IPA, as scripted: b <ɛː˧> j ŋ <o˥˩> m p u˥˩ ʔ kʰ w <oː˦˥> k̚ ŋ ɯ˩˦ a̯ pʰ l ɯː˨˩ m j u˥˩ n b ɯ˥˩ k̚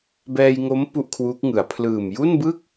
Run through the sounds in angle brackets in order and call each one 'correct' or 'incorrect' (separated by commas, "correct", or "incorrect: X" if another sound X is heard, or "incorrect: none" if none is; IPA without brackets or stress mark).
correct, incorrect: o˦˥, incorrect: uː˦˥